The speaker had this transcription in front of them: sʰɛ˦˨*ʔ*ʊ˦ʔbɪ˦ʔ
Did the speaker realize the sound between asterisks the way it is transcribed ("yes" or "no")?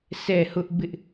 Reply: no